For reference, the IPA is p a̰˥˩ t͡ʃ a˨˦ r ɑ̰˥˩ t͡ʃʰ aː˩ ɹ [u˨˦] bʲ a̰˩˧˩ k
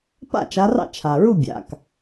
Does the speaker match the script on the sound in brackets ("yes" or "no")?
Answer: no